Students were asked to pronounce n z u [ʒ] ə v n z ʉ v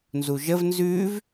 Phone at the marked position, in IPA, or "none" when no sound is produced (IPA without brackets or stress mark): ʒ